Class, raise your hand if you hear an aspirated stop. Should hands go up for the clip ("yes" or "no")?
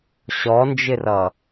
no